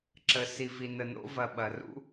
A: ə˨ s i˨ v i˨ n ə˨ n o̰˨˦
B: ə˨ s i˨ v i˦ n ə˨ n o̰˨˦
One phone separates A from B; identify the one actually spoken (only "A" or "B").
A